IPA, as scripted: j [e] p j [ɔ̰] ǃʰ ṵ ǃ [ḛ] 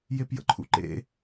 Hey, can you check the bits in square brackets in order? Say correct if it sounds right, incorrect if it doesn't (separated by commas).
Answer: correct, incorrect, correct